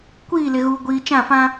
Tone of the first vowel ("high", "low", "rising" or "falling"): falling